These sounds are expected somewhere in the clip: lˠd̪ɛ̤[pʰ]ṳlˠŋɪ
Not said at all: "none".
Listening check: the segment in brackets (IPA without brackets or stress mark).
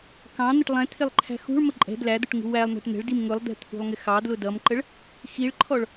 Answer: t̪ʰ